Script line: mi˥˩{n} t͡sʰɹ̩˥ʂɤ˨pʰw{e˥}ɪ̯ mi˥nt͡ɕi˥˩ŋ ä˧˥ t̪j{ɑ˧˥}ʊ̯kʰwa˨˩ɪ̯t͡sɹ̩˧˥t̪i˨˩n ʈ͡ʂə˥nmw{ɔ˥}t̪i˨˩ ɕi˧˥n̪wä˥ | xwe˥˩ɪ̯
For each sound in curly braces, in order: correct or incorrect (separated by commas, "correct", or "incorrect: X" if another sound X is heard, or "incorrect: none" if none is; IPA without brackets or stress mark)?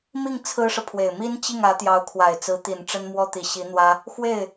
incorrect: ŋ, incorrect: e˨˩, correct, correct